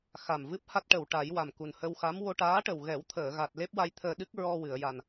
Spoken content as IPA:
x a˨˩ m v ɨ˦˥ p̚ h a˦˥ t̚ ʈ ə˨˩˨ w ʈ a˨˩˦ j w a˨˩ m k u˨˩ n h ə˧ w x a˧˥ m w o˧ ʈ aː˧˥ ʈ ə˨˩ w ɣ ɛ˨˩˦ w t̪ʰ əː˨˩˨ ɣ a˨˩ t̚ l e˦˥ p̚ w a˧ j t̪ʰ əː˧ ɗ ɨ˦˥ k̚ ɹ ɔ˧ w ɨ˨˩˨ ə̯ j a˨˩ n

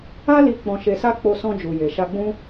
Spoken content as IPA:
a˦ l i˧ k͡p ɔ̃˧ ʃ e˧ s a˦ k͡p o˧ s ɔ̃˧ d͡ʒ u˨ j e˨ ʃ a˧ ɡ͡b ũ˦

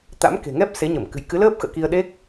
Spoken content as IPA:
t̪ a̰˧˥ m k e̤˨˩ ŋ ɛ˦˥ p̚ s e˨˦ ɲ ə˧˩ m k ɨ̤˨˩ j k ɨ˨˦ l əː˦˥ p̚ x ə̰ː˧˨ k i˧ ə̯ ɗ e˦˥ k̚

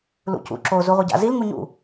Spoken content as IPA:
l ṵ c ṵ ǁ o z u ʁʷ e ɟ a̰ z i l ŋ u ɲ ṵ

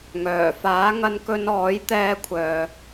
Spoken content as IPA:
ŋ œː˨˩ f aː˨˥ ŋ ɐ˧ n k ɵ˧ n ɔː˨˥ j t̪ ɛː˧ kʷʰ œː˨

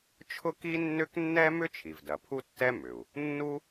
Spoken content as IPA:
t͡ʃʰ ʊ˥ k i˥ nː ʏ˥ k nː ɛ˥ m ʏ˥ t͡ʃʰ i˩ v d ɐ˩ pʰ u˥ tː ɛ˥ m ʏ˩ u̯ | nː u˥

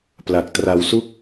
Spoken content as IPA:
p l a˨˩ k̚ t r a˧ w s u˥˩ k̚

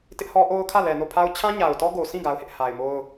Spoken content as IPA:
t ɪ˦ ʔ h ɔ˦ ʔ o˦ ʊ̯ kʰ ä˦˨ l ɛ˨ n o˦˨ pʰ a˦ ʊ̯ t͡ɕʰ ã˦ ɲ a˨ ʊ̯ t ɔ˦ ɡ o˨ sʰ ĩ˦˨ ɡ a˦ ʊ̯ h ɪ˦ ʔ h a˨ ɪ̯ m o˦ ʊ̯

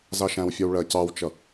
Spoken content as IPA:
z ɑ ʃ æ̃ w fʲ ɔ w ɭ ɜ c ɑ w t͡ʃ ʌ

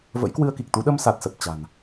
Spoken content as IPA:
v ə̰˧˥ j k w ɨ˧ ə̯ k i˨˩ k̚ t̪ u˨˦ ɗ ə˧ m s a˨˩ t̚ s ə˨˩ p̚ t͡ɕ a̤˨˩ n

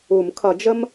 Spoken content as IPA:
u˨˩˦ m kʰ ʌ˨˩˦ d͡ʒ ə˥ m

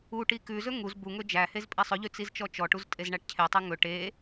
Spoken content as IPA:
u ʈ i k ʉ z ɵ ŋ u z b u ŋ ɵ d͡ʒ æ h e z pʼ i sˤ ɵ ʎ ʉ t͡s i z t͡ʃ ɔ t͡ʃ ɔ ʈ u z tʼ e z ɳ æ ʈ cʰ e tˤ e ŋ ɵ ʈ e

